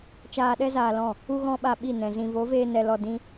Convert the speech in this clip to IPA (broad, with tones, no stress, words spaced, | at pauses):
t͡ʃaː˧ɗɛ˦ zaː˧lɔ̃˦˨ | u˦ɣɔ̃˦ɓa˧ ɓi˦˨nɛ̃˨ zĩ˨vo˨˦veː˧nɛ˨ lɔ˧dĩ˦